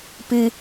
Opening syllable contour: low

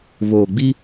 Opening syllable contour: low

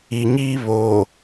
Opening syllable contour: low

